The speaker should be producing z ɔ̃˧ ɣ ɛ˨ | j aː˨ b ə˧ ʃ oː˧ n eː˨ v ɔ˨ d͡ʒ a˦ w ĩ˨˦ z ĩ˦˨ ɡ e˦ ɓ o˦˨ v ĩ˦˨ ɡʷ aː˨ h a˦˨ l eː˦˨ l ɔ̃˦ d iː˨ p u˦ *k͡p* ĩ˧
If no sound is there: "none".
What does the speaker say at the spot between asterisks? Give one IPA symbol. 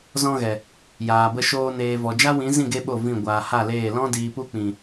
k͡p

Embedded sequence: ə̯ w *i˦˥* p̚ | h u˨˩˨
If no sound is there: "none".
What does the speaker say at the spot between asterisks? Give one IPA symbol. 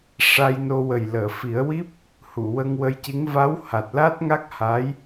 i˦˥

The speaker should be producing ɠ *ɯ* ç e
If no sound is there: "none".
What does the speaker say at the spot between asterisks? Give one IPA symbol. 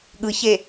ɯ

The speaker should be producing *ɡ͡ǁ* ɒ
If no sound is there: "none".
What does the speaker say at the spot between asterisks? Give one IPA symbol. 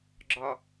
ɡ͡ǁ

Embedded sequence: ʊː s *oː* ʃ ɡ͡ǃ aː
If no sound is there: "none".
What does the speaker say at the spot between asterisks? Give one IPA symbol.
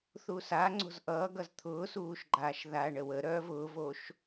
uː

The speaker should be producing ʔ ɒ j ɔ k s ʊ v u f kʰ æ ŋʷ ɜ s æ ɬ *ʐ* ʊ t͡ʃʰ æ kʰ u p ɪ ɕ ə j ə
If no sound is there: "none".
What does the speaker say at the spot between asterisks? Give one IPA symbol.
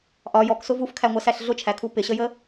ɮ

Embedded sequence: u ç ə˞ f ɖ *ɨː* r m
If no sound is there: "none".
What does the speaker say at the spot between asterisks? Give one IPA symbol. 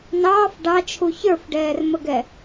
ɛː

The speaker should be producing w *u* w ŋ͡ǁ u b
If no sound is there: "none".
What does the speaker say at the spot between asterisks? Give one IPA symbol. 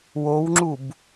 o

